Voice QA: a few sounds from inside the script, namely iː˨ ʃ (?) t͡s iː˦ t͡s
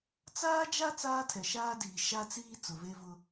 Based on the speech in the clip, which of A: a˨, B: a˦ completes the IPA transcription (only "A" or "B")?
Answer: B